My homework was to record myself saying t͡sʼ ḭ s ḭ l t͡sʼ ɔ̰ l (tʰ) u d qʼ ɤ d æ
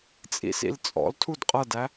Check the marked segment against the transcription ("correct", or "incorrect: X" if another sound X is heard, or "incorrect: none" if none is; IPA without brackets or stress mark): correct